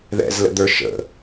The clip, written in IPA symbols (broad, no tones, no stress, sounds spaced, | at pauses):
ð ɛ̰ z l ə̰ d̪ ə˞ ʃ ə̰